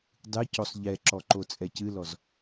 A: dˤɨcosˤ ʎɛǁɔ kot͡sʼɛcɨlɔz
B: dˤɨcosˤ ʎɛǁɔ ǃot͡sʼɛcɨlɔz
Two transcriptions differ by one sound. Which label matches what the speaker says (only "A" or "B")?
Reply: B